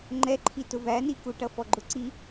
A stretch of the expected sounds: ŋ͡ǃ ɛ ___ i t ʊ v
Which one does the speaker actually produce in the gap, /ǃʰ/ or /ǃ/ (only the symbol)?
ǃʰ